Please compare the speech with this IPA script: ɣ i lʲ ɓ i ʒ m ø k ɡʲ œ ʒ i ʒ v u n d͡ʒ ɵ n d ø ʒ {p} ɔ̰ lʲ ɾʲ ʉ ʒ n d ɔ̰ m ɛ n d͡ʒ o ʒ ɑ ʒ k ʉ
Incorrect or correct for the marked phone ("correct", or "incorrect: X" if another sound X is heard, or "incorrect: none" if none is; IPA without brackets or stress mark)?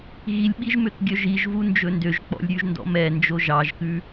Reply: incorrect: k͡p